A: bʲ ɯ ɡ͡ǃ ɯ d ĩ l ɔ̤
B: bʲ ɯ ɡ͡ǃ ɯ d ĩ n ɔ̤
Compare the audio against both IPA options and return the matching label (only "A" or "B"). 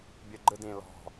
A